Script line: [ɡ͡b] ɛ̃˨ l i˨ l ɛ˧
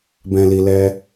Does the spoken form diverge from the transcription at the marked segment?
yes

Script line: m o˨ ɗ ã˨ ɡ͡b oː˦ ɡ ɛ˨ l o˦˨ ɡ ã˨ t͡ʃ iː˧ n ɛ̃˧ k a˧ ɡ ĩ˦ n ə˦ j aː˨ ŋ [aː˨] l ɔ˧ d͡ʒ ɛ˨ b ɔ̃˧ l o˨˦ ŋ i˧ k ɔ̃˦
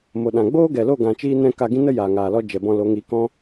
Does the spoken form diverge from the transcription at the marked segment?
no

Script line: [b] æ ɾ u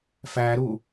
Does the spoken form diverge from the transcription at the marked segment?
yes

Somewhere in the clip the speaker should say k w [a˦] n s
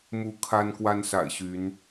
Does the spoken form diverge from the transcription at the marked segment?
no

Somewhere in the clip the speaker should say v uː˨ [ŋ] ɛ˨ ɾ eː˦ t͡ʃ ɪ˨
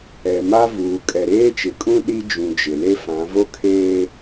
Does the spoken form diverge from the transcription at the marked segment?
yes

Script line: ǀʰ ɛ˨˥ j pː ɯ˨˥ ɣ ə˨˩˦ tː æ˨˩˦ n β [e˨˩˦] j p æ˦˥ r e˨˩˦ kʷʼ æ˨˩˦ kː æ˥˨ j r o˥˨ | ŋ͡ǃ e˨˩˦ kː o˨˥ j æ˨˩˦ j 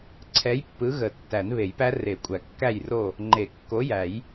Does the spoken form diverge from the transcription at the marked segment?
no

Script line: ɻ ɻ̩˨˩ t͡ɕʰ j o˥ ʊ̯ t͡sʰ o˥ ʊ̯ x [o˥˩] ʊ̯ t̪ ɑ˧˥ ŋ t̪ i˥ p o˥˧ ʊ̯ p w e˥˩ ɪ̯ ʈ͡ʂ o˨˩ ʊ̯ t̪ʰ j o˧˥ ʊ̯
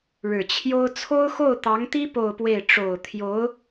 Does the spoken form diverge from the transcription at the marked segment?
no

